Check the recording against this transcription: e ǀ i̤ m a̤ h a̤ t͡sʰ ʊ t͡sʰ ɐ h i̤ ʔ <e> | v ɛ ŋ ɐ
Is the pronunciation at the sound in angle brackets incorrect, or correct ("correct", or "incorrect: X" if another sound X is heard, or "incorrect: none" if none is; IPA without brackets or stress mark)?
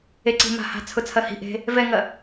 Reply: incorrect: e̤